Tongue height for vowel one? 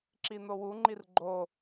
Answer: high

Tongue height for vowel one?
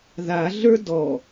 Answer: low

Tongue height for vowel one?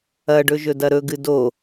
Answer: low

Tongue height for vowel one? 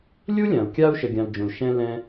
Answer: high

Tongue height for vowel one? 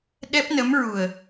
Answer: mid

